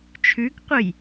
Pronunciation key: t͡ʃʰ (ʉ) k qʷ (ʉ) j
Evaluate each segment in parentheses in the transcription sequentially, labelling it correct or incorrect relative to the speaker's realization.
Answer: correct, incorrect

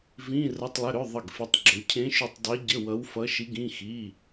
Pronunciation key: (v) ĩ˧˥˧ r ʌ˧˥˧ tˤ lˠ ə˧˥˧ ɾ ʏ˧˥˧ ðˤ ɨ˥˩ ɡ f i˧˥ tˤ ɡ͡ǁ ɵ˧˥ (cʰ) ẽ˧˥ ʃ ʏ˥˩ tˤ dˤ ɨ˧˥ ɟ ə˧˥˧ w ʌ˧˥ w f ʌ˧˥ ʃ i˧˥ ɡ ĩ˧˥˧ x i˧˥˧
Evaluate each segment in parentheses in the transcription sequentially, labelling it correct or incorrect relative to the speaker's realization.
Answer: correct, correct

